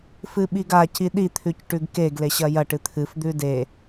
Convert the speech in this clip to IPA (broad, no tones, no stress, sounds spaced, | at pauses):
f ɨ ɓ i ɡ a c i ɗ i t̪ʰ ʉ c ʈ ʉ ɡ k e ɡ l e ɕ ɐ j ɐ ʈ ɨ t̪ʰ ɨ f d̪ ʉ d e